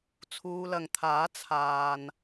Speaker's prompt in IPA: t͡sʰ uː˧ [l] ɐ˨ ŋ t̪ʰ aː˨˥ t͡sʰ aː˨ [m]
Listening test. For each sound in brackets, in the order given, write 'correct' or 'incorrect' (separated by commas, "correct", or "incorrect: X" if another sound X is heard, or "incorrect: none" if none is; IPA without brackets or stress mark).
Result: correct, incorrect: n